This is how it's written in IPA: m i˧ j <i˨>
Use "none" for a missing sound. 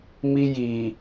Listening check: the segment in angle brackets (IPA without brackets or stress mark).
i˨